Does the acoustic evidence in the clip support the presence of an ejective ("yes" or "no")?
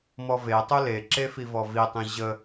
no